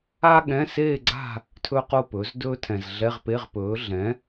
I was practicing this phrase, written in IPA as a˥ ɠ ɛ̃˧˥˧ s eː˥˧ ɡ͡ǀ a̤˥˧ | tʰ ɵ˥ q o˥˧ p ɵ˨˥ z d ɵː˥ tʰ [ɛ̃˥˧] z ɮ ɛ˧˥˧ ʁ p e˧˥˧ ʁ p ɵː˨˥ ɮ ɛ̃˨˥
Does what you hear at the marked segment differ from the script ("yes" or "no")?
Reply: yes